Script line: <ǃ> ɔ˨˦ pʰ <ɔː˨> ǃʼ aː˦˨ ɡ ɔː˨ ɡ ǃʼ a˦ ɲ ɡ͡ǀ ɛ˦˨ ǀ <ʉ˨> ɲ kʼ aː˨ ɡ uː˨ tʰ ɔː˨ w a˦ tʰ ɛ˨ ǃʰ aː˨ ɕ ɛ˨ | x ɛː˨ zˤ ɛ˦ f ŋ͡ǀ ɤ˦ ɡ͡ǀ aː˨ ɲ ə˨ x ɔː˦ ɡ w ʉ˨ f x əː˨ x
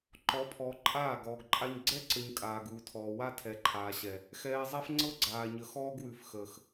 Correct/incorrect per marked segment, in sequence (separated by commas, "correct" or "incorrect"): correct, correct, incorrect